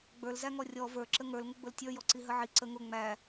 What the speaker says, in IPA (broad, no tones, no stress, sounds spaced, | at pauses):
ɡ͡b ə˞ l z æ ŋ ɔ rʲ ɔ v ə˞ ǁ ə ŋ ə˞ l ŋ ʊ ɡ͡b ʊ l tʲ ə˞ j ɔ ǀ i ɦ ə ʕ i ǀ ə ŋ ʊ ŋ͡m æ